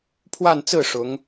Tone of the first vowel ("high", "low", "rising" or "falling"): falling